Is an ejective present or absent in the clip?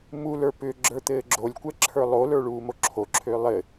absent